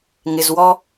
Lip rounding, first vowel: unrounded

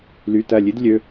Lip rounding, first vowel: rounded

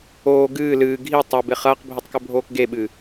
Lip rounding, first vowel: rounded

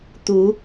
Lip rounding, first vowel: rounded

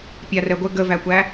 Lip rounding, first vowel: unrounded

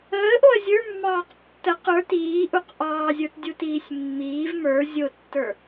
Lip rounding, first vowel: unrounded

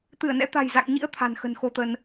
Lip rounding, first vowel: unrounded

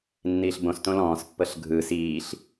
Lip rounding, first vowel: unrounded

